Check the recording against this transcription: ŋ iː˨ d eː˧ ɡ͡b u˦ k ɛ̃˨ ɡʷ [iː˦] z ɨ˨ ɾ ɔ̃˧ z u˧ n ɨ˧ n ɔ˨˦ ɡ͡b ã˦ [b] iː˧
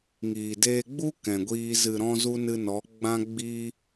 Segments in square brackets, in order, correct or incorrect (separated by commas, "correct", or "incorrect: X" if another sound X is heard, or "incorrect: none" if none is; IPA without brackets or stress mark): incorrect: iː˧, incorrect: ɡ͡b